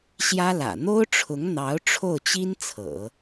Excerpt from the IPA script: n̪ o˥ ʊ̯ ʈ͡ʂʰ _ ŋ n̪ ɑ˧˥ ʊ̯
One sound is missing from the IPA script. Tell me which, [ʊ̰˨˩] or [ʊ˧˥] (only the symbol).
ʊ˧˥